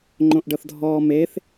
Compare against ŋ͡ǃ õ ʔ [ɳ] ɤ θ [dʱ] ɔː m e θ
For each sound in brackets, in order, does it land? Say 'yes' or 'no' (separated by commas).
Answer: no, yes